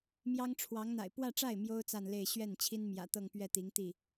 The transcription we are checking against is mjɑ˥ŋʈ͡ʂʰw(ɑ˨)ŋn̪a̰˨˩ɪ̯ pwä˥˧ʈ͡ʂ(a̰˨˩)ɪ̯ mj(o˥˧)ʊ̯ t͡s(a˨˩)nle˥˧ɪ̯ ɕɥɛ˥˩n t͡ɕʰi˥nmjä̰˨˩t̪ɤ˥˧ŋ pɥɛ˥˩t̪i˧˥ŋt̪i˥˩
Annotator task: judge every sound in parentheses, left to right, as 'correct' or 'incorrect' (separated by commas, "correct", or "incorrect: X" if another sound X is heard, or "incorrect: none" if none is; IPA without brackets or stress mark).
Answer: incorrect: ɑ˧˥, incorrect: a˥˩, incorrect: o˥, incorrect: a˥˧